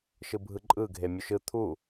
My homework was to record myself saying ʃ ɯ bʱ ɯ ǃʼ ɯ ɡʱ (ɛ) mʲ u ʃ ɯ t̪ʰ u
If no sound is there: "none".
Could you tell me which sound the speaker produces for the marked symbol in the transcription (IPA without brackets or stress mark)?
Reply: e